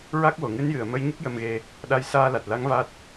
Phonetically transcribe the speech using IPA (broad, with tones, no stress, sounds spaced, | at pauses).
ɹ a˦˥ k̚ w o˨˩˨ ŋ ɨ˧˥ n j ɨ˨˩˨ ə̯ m ə˧˥ j ɲ ə˦˥ k̚ j ə˧ m ɣ e˧ | ɗ a˧ j s aː˧ l a˨˩ t̚ l a˧˥ ŋ v a˦˥ t̚